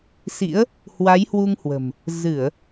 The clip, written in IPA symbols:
sḭ˧˥ə̯ | hwa˨˦jhwu˧ŋhwə̤˨˩m | zɨ˧˩˨ə̯

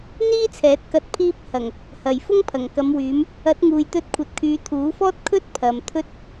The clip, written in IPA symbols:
n̪iː˥t͡sʰɛː˨˥t̚ kɐ˨˥t̚pʰiː˧p̚hɐ˨˩ŋ | hɐ˨˩jfʊ˥ŋpʰɐ˨˩ŋ kɐ˨˧mwyː˨˧m | ɐ˨˥t̚ŋuː˨jt̪ɵ˧t̚ kʷʰɐ˨t̚kʰyː˨˧t̪ʰuː˨˥fɔː˥t̚ kʰɵ˥t̚ pʰɐ˨mt̪ʰɵ˥t̚

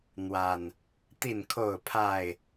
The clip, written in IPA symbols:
n̪wa˨˩n | t̪i˥˨nkʰo˥˨ʊ̯pʰa˥˨ɪ̯

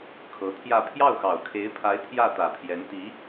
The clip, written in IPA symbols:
kʰɤ˧˥t̪ʰjä˥˧ pʰjɑ˥˩ʊ̯xɑ˨˩ʊ̯kʰe˧˥ɪ̯pʰa˧˥ɪ̯ t̪ʰjä˥˩ t̪ä˨˩pʰjɛ˧˥n t̪i˧˥

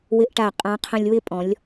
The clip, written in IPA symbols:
wɪ˧ʔʈa˧˩ qʼã˧qʰə̃˧lʲ wɪ˥˧pʼɔ̃˩˧lʲ

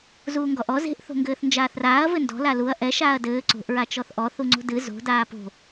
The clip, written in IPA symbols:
zuːŋɡɔʔɔ ze̤ʔ θo̤ŋɡɘːθnd͡ʒaːθraːɐ̯ vɘndɔ̤ laluɐ̯ ʔɛ ʃaːɐ̯dɘː ǀo̤ʔ ɹat͡ʃɔθʔɔ θuŋ͡ǀo̤dɨ zo̤ daːpo̤

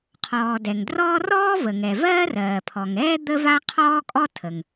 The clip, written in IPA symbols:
qʰɔː˩ dɛ˩ŋdrɔː˥ rɔː˥və˩ŋɛ˩ vɜː˥rɜː˩pʰɔ˩ŋɛː˥ d̪ə˥va˥ qʰɔː˥kʼɔ˥tʰə˩ŋ

